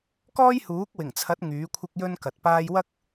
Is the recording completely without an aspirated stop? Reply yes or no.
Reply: no